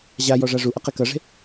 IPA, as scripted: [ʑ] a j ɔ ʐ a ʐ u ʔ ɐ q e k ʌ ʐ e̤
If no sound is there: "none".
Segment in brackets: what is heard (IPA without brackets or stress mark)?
ʑ